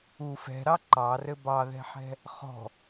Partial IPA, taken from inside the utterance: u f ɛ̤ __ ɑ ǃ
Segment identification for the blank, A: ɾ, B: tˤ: A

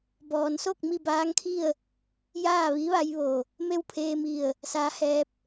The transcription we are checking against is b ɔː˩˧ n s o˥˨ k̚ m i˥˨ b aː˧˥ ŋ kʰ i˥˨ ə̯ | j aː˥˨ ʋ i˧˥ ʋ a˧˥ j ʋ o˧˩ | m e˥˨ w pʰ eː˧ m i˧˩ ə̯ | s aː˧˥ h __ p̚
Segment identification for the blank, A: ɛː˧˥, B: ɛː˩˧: A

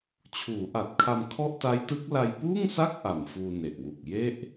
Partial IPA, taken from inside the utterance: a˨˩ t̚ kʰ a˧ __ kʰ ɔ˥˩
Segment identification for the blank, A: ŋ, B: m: B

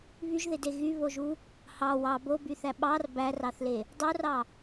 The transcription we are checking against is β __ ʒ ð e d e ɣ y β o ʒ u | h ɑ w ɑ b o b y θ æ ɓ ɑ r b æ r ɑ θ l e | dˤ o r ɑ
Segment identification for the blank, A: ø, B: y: B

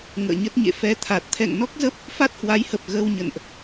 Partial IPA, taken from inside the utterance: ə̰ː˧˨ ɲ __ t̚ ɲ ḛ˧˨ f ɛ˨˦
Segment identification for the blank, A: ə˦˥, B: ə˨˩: A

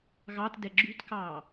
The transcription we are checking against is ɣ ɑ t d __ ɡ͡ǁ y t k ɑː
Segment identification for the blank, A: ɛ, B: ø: A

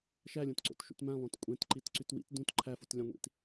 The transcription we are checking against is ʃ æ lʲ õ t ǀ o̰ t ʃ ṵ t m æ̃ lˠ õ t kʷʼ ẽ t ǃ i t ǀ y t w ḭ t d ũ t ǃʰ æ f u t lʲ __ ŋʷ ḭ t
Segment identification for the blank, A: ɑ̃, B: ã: A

